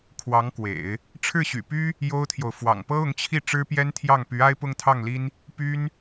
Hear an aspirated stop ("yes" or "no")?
yes